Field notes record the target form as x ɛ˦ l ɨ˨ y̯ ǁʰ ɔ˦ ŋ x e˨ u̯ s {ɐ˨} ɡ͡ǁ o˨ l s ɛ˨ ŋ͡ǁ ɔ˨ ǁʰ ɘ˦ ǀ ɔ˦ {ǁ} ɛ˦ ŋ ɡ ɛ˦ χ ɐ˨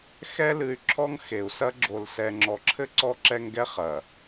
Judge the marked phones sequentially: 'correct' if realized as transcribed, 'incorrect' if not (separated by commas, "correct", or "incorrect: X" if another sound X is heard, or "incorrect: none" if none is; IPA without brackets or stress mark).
incorrect: ɐ˦, correct